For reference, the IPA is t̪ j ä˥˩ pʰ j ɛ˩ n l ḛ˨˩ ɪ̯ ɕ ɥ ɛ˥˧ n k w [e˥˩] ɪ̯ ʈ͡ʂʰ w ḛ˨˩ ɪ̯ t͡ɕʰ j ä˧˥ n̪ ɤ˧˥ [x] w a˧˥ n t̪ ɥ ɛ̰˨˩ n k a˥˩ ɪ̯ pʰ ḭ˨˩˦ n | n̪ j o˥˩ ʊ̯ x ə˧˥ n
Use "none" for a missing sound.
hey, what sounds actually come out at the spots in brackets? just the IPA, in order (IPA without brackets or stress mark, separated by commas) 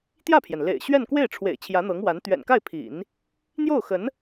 e˥˩, ŋ